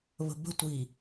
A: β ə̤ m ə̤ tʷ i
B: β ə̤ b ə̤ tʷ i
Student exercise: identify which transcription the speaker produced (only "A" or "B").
B